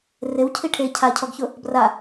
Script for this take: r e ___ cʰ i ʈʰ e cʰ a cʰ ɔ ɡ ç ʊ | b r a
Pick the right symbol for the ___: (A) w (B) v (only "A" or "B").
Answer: A